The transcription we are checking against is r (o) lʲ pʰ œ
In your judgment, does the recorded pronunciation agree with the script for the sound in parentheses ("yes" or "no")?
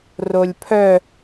yes